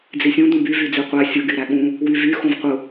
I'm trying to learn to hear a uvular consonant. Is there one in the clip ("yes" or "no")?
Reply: yes